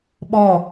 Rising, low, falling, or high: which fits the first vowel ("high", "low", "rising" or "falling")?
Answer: falling